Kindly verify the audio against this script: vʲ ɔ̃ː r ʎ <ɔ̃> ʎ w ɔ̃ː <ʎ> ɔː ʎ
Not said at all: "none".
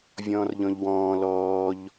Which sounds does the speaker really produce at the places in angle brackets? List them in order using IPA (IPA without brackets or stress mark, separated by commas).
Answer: ɔ̃, l